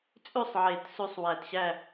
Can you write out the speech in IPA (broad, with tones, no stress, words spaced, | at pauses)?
t͡sʼʉ˥˨sˤʕe˨˩˦t sʉ˧sˤwæ˨˩tɕæ˥˨